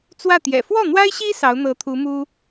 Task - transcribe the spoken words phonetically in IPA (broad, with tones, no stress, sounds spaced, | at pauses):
t͡s w ä˥˩ t̪ j ɛ̰˨˩ f w ɔ˥˩ n̪ w a˥ ɪ̯ ɕ i˥ s ɑ˧˥ ʊ̯ n̪ ɤ˧˥ t̪ʰ u˧˥ m u˥